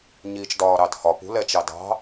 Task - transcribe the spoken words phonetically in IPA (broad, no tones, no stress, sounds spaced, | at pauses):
ɲ iː t͡ʃ d ɒː ɾ ɑ d h ɒ p ṳ l ɛ t͡ʃ ɑ d ɑ̤